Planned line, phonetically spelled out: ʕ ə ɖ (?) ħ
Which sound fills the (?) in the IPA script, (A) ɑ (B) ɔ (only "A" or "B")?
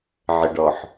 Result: B